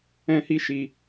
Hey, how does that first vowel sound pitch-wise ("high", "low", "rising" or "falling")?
high